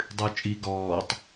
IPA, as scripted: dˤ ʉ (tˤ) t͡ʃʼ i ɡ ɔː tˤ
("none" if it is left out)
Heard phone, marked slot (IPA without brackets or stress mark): none